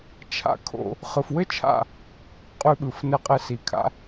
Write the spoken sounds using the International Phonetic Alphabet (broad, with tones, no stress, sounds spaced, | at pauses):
t͡ʃʰ a̰˧ kʰ o̰˧ | χ ɯ˨ f w ɘ˦ t͡ʃʰ a̰˦˨ | qʼ ʉ˧ ɓ ɯ˨ f n ɘ˧ qʼ ɘ˧ s i˨ kʰ a̰˦